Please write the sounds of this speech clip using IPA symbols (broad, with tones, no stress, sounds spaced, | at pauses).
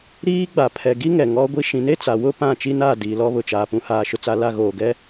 ɾ iː˦ ɡ͡b a˨ pʰ ɛ˨ ɡ i˦ ŋ ɛ˨ ŋ ɔ˦ ɡʷ i˦ ʃ ĩ˨˦ n e˦ t͡s a˨ w ʊ˦ p ã˦˨ t͡ʃ i˦ n aː˦˨ d iː˨ l ɔ˦ β ʊ˨ t͡ʃ aː˨ p ũ˨ h aː˨ ʃ ʊ˨ t͡s a˨ l a˦˨ ɣ oː˨ ɡ ɛ˦